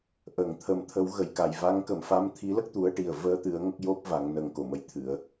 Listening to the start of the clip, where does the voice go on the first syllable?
low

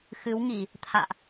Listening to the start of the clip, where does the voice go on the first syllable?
rising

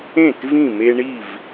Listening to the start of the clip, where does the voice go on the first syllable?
falling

